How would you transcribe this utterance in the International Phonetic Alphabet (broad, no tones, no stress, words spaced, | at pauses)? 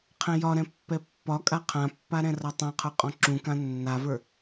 qʰɛ̃jɒɾɛ̃ pːɛpːɒkʼa qʰãpːa ɾɛ̃rɒtˤãqʰə˞ qʼɔ̃ǁũkã nːavə˞